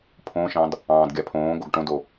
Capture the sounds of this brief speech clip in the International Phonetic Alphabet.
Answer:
pʰ õ ʃ ɑ̃ d | ɑ̃ː d ɡʲ a pʰ õː ɡ o ɡ ʈ õ d o

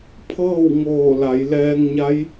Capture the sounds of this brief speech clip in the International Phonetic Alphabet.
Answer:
pʰ ɤː˥˨ w ŋ oː˧˩ l a˩˧ j l ɛː˧ ŋ ɲ a˧˥ j

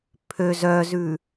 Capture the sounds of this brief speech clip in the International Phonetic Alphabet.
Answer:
pʰ ø z œ z ʉ

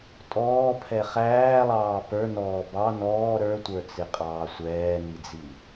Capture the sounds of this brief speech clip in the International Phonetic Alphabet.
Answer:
tʼ ɔː pʰ ɛ χ æː lˠ ɑː p ə˞ n ɔː b ɑ n ɔː ɾ ə˞ tʷ ə˞ t͡s ɪ qʼ ɑː sʷ ɛː n i d͡z i

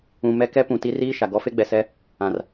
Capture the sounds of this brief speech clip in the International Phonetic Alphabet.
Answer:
ũ˨ m ɛ˦ k ɛ˦ p ũ˨ t i˦ r iː˦ ʃ a˨ ɡ ɔ˦ f e˦ ɡ͡b ɛ˨ s ɛ˦ | ã˨ r

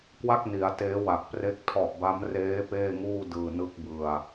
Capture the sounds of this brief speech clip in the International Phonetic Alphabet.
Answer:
k w a˥˩ k̚ n i˩˦ a̯ t eː˦˥ w a˨˩ k̚ p r e˥˩ k̚ tʰ ɔ˨˩ ʔ b a˦˥ m r eː˦˥ p eː˥˩ ŋ uː˥˩ d ɯː˨˩ n ɯ˦˥ k̚ b ɯ˧ a̯

